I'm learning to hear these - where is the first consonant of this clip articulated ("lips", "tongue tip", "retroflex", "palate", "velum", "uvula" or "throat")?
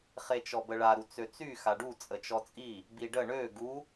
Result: uvula